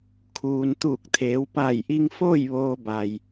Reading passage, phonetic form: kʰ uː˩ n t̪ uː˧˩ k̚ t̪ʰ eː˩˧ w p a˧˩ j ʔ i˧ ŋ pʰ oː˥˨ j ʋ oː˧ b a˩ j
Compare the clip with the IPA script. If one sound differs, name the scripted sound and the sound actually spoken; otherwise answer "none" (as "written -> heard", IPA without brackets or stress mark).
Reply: pʰ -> f